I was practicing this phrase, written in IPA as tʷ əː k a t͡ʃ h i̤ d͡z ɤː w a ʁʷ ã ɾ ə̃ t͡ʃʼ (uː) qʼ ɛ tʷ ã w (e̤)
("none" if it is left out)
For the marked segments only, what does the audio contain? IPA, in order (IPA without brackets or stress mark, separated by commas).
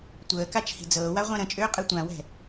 ʏː, ɛ̤